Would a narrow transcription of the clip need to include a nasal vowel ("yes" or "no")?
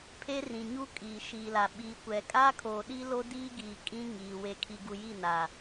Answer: yes